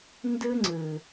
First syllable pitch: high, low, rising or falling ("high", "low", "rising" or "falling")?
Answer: high